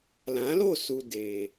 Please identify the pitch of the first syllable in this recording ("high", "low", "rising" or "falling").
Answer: rising